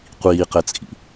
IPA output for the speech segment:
qʷiːqɛt͡sʼḭ

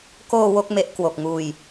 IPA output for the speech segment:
koː˧ wo˦˥k̚ me˦˥ʔ kwo˨˩k̚ŋuː˧j

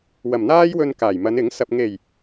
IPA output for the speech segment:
wɐ˨˩mn̪aː˥j wɵ˧nkaː˨˩jmɐ˨˧n ɪ˨˥ŋsɐ˧p̚ ŋe˨˩j

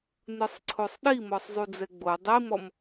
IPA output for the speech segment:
nɯsˤǀʰosˤɗimɔsˤ zˤud͡zɛɡ͡bo dˤimɔm

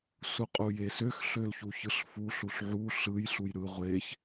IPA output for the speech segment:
suqʼujesøx ɬølçuçɯɬfu ɬuɬʕu ɬɯj ɬujɾɯ ʁʷeç

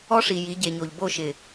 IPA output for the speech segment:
ɔ˦ʂi˨ ji˨˦ɟe˨ɲo˨ʎ bo˦˨ʃɪ˨

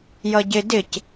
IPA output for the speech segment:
jʌɟɪ dɪc

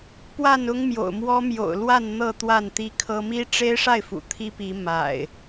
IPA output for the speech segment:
pwa˥˨nʊ˦ŋmjo̰˨˩ʊ̯mwɔ˦ mjo̰˨˩ʊ̯ lwa˥˨n n̪ɤ˥˨ t̪wa˥˨nt̪i˦kʰɤ˦ mi˦ʈ͡ʂe˦ɪ̯ʂa˥˨ɪ̯fṵ˨˩ t̪ʰi˦pi˨˦ ma̰˨˩ɪ̯

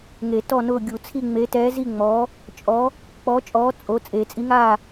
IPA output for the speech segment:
ŋe˨˩˦tɔ˦˨nʊː˦˨ ɡʲu˨˩˦t͡sʰi˦˨ ŋ͡me˨˦tɛː˨˦zi˦˨ŋ͡mɔː˨˦ | t͡ʃʼɔ˨˦ | k͡pɔ˨˦t͡ʃʼɔː˨˦ t͡sʼo˨˦ t͡sʼe˨˩˦t͡sʼi˨˦ŋaː˦˨

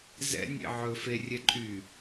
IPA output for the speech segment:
zɛ̰ nʲḛʕɵ ferʲɛ ǃʼy

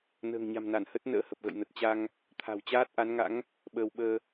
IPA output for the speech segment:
nə̤ː˨˩ŋɲa̤˨˩mna˧˩n hə˦˥t̚ nə̰ː˧˥hə˨˩p̚ɣə̰˧˨j nə˨˩t̚t͡ɕa˧ŋ | t̪ʰa̤˨˩wt͡ɕaː˦˥t̚ʔa˨˦n ŋa̰˧˥ŋ | ɓəː˧wɓəː˧

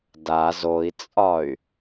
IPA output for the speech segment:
daz oi̯t͡sʼɒy̯

